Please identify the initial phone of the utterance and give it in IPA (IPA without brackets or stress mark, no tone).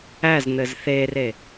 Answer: æ